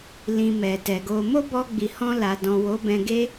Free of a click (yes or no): yes